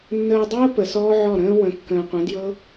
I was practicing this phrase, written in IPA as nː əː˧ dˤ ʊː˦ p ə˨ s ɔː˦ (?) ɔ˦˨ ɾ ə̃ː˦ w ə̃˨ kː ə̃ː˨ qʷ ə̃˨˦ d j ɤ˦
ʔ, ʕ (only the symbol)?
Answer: ʕ